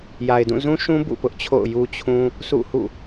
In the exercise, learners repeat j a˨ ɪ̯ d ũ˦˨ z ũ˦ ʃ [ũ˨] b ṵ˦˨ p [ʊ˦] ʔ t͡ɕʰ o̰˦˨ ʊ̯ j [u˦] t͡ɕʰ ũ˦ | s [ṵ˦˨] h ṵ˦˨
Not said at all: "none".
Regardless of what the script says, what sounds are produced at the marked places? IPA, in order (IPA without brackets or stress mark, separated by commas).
ũ˦, ʊ˦, u˦, ṵ˦˨